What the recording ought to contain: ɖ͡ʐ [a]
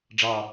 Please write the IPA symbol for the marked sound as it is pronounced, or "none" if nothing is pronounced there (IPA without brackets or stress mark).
ɑ